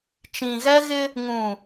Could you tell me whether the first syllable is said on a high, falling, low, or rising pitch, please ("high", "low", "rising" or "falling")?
low